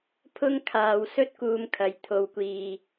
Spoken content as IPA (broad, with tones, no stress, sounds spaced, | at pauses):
pʰ ʊ˥ ŋ kʰ aː˨ w s ɵ˥ t̚ k uː˧ m kʰ ɐ˨˧ j t̪ʰ o˨˧ w kʷ iː˨